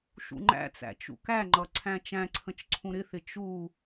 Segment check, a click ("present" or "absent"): present